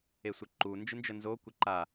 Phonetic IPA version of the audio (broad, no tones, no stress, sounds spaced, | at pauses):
e sʷ ɘ ǃ u n d͡ʒ ɨ n d͡ʒ ə n z o kʷ ə ǃ a